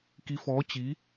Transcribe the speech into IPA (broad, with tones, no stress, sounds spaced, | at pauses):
k i˧˥ f ɔː˧˥ t͡ɕ i˧˥